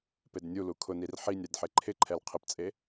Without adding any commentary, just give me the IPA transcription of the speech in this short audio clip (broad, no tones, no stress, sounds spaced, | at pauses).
p e d nʲ u l u kʰ ʊ n i r ħ i nʲ ɾ i d ħ e ǃʰ ɪ ǃʰ ɛ l qʰ ɪ p t͡sʼ e